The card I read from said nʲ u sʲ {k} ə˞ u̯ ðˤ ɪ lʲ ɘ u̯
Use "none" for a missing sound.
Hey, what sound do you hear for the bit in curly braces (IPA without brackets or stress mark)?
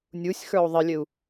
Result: x